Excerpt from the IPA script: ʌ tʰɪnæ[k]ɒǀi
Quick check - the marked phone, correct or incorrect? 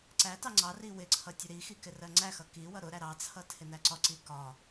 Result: incorrect